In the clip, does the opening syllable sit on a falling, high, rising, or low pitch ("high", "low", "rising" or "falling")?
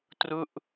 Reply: falling